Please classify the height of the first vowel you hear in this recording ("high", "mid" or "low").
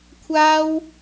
low